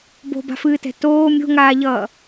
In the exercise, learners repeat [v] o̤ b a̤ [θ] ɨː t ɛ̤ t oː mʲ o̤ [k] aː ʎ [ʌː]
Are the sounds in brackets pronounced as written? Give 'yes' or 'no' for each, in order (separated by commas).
no, no, no, yes